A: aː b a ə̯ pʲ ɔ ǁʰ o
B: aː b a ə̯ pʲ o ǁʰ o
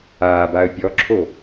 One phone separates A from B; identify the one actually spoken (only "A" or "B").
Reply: A